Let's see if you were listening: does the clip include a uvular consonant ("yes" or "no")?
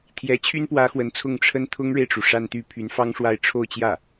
no